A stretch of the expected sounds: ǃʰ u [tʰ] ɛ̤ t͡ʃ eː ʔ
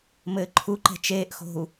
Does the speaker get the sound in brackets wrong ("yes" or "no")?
yes